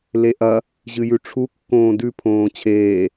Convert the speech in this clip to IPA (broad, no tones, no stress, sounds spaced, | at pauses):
l e ʔ ɐ | ʑ ɨ j ʉ ʈ͡ʂʰ u kː õː d ʉ pʰ õː t͡ɕʰ eː